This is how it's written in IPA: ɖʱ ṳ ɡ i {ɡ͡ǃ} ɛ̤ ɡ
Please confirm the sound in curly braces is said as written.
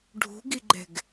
yes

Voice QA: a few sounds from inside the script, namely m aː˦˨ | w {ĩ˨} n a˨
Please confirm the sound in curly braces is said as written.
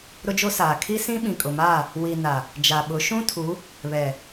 no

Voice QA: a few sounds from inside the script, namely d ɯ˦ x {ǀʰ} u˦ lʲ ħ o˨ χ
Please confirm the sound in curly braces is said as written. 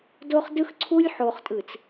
yes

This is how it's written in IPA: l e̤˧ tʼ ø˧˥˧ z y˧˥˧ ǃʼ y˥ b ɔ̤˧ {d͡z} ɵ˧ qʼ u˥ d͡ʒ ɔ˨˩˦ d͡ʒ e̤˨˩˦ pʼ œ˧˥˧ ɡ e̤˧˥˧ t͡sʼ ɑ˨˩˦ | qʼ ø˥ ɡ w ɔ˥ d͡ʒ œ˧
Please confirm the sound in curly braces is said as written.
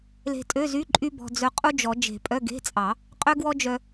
yes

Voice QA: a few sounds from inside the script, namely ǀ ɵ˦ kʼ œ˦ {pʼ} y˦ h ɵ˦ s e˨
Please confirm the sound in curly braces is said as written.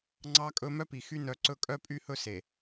yes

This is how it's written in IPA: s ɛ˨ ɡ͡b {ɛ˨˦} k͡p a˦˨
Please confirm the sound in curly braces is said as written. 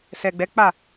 yes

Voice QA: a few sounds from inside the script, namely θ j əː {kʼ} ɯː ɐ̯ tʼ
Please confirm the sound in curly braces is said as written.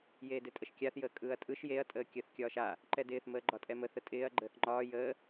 yes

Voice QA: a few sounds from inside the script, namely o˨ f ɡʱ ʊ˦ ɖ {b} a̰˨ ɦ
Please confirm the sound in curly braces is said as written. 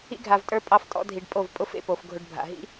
no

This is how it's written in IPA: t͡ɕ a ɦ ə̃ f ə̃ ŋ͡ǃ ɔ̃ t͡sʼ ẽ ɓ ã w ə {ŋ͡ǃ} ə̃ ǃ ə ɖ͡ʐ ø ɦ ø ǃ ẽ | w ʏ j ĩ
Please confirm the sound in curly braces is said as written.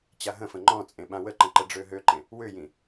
no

